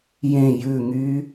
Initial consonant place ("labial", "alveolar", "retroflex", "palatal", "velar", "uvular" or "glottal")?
palatal